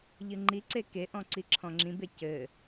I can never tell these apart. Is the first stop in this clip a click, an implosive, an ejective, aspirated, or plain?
click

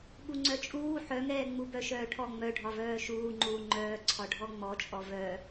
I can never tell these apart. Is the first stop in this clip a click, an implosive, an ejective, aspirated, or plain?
implosive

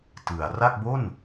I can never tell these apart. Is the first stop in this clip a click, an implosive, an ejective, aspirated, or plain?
plain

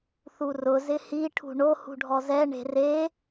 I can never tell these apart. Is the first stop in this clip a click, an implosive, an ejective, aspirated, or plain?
aspirated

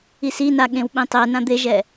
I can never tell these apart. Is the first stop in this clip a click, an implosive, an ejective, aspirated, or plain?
implosive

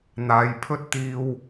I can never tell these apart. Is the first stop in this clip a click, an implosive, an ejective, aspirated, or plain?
aspirated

